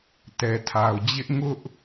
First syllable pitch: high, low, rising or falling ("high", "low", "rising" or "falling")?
low